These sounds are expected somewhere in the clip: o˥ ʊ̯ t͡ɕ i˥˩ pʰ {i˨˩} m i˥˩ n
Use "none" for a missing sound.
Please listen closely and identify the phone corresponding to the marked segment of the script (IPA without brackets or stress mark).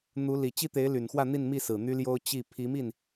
i˧˥